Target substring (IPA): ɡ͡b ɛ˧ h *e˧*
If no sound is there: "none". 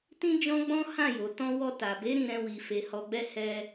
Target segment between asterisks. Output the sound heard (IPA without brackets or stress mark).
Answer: ɛ˧